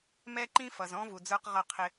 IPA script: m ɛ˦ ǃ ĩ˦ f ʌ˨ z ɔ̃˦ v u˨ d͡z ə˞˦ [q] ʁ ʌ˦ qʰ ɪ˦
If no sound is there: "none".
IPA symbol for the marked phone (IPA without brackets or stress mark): q